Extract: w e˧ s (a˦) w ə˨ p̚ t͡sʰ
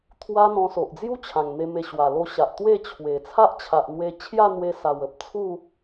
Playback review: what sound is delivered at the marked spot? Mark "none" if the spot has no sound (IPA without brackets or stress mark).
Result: a˨˩